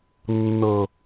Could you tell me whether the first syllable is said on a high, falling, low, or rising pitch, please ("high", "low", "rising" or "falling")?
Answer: low